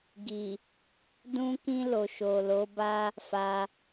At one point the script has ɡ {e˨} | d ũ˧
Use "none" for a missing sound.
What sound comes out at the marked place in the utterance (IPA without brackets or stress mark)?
i˨